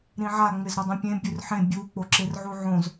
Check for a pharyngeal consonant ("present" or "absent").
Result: present